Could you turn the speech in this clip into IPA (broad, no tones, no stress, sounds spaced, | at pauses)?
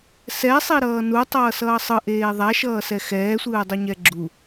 s ɛ sˤ i ɾ ʌː n u tˤ ʌː s ʌː sˤ ɯ ʔ eː ðˤ a ʃ ʌː s ɛ x ɛː sʷ ɯː dˤ o ɲ ɛ ɡ͡ǁ u